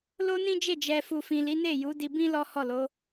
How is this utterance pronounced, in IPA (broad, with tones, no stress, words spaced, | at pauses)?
lo˦nĩ˦d͡ʒe˦˨ d͡ʒɛ˨fu˨fĩ˨ li˨˦ne˦˨ ju˨˦di˧bĩ˦ lɔ˦hɔ˦˨lo˨˦